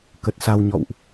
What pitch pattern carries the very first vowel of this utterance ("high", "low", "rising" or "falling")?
low